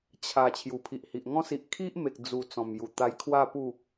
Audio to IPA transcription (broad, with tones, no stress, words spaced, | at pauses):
t͡ɕʰa˨˩ t͡ɕʰju˨˩pʰi˨ʔhi˨ʔŋɔ̃˦ si˨ʔkʰi˦ʔme˨k̚ d͡zu˨˩ t͡sɔ̃˨˩mju˨˩ t̪a˧jkʰwa˥˧pu˥˧